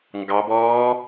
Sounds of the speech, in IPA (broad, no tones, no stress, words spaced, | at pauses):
ŋɡɑbɔː